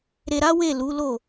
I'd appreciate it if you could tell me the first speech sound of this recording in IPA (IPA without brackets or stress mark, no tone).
ɾ